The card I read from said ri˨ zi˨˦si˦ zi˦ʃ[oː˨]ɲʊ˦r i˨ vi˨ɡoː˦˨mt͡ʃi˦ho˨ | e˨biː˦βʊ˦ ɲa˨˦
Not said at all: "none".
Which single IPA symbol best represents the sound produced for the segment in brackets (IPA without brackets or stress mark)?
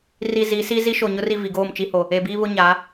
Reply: o˨